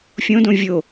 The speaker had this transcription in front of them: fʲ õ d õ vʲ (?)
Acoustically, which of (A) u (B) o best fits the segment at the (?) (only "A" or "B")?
B